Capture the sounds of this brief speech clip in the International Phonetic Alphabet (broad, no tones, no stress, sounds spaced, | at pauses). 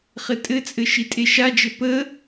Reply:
χ ɘ tʼ ɘ t͡sʼ ɘ ʃ i tʼ e ʃ a d͡ʒ ɘ p ə